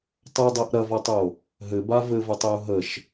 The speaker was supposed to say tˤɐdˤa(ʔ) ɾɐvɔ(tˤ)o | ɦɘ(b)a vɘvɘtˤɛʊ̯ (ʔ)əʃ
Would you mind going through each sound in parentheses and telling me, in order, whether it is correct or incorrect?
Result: correct, correct, correct, incorrect: ɦ

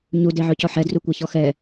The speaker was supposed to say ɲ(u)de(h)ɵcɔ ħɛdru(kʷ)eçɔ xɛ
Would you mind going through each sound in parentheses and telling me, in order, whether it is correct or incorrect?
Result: correct, incorrect: ʕ, correct

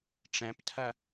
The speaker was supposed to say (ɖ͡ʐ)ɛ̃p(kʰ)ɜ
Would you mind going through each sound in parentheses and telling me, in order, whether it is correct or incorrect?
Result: incorrect: ʈ͡ʂ, incorrect: tʰ

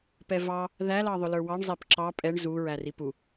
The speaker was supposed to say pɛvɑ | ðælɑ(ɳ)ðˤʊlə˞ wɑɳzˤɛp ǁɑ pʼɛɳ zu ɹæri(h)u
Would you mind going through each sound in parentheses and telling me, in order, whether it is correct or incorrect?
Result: incorrect: none, incorrect: p

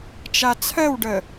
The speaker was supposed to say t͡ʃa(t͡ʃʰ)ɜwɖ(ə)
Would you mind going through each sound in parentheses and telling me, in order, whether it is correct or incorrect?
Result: incorrect: t͡sʰ, correct

